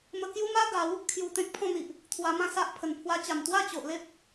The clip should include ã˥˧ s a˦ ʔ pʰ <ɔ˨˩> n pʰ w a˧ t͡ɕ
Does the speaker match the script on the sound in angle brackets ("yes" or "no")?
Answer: no